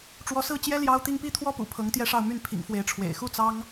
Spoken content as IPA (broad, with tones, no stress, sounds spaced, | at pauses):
ʈ͡ʂ w ɔ˧˥ s ɹ̩˥˩ t͡ɕ j ɛ˥ l j ɑ˥ ʊ̯ t̪ i˥˧ ŋ p i˥˧ t̪ʰ w ɔ˥˩ p ṵ˨˩ pʰ ɤ˧˥ ŋ t̪ j ɛ˥˧ ʂ ɑ˥˧ ʊ̯ m y˥˩ n pʰ ḭ˨˩ ŋ f w e˧˥ ɪ̯ ʈ͡ʂʰ w ḛ˨˩ ɪ̯ x u˥˩ t͡s ɑ˥ ŋ